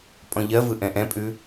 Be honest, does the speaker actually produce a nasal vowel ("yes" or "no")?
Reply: yes